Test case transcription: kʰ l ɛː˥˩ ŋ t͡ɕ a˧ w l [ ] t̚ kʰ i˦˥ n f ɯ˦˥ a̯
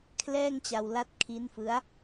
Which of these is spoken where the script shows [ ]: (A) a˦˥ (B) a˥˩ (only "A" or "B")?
A